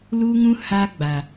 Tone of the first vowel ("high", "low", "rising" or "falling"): high